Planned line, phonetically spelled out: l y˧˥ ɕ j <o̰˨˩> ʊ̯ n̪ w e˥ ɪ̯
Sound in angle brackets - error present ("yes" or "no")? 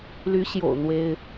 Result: no